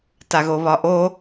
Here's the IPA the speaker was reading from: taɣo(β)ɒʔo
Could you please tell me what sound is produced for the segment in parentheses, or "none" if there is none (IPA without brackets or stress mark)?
β